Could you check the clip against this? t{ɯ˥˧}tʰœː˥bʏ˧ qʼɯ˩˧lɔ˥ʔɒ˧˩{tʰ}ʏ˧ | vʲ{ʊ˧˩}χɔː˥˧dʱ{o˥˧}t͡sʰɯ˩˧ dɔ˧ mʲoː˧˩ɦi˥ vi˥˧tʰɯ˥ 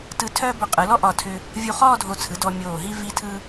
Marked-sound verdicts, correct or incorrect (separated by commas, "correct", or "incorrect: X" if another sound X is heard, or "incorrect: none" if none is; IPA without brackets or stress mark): incorrect: ɯ˧, correct, incorrect: u˧˩, incorrect: o˧˩